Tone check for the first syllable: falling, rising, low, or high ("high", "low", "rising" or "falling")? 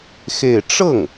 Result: falling